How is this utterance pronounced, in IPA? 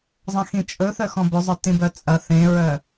zˤɐ̃xĩt͡ʃʼɵ θœxɔ̃bɵzˤə˞ tĩbœt͡sʼɐ θẽɹœ

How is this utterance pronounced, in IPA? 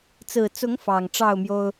t͡sɹ̩˨˩t͡sʊ˨˦ŋ fɑ˨˩ŋʈ͡ʂɑ˥˨ʊ̯mjo˦ʊ̯

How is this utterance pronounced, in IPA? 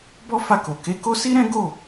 bɔ˦fa˦˨ko˨ ke˨˦ ko˦si˦ɾɛ̃˦ ɡo˦˨

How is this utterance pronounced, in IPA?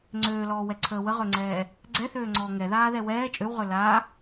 ŋ͡ǀøːlɔːwɛǀʰəː wəʁøŋ͡ǀɛː | ɡ͡ǀɛθøːŋ͡ǀɔː ŋɛðaːðɛ wɛː t͡ʃʼøwʁø la

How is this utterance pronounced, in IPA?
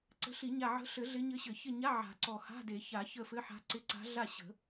ǀə̤˧˥ɬi˨˩˦ɲa˦˨ ʕə̤˧˥ ɬɘ˨˩˦ ɮɪ˧˥ɲɘ˧˥ɕɘ˨˩˦ çɪ˦˨ɲa˧˥˧ ʕa̤˨˩˦ǀɔ˨˩ha̤˧˥˧ de˨˩˦ ça˨˩˦çə˦˨fɘ˧˥˧ ħa̤˧˥ǀɪ˧˥˧ ǀa̤˧˥ ɮa˦˨ɕə̤˨˩˦

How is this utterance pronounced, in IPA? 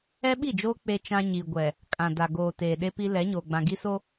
ɛ˦ɓi˦˨d͡ʒoː˦ k͡pe˦t͡ʃã˦ ɲi˨ɡʷɛ˨ | kʼã˨da˨ɡoː˨ teː˨ɗe˦pi˦ lɛ˨˦ ɲoː˨ɡ͡bã˨ɡi˦so˦

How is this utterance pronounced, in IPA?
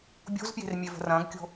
bʲo̤zpje̤r mʲevə̤rɐ̃ːɡkʲo̤

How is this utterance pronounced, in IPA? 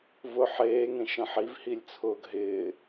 vʊ ħeːŋẽʃə̃ ħivhilʲt͡sʰʊːɡ ɦɪː

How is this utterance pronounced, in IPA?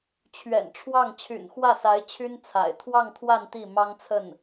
t͡ɕʰɥɛ̰˨˩nʈ͡ʂʰwɑ˥˩ŋ t͡ɕʰy̰˨˩nxwä˥˩sa˧˥ɪ̯ t͡ɕʰy˥nt͡sʰa̰˨˩ɪ̯ t̪ʰwɑ˥˧ŋt̪ʰwa˥˧n t̪i˥˩mɑ˥ŋt͡sʰə˥˩n

